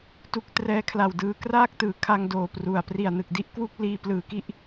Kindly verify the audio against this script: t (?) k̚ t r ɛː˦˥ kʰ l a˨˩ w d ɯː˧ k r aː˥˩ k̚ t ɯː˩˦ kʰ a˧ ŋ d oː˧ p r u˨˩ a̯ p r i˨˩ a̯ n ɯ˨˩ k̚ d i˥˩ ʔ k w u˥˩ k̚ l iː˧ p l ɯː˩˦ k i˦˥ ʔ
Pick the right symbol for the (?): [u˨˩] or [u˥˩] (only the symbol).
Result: u˥˩